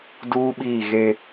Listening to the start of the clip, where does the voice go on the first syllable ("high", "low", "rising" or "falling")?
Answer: high